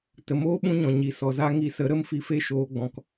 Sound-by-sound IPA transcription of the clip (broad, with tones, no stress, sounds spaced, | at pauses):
t ə˨ m oː˦ ɓ ũ˦ ɲ ɔ̃˨ ɲ i˨˦ s ɔ˨ z a˦ ŋ i˧ s ə˨˦ ɾ ə˦ m f i˧ f e˦ ʃ oː˧ ɡ͡b ɔ̃˧ k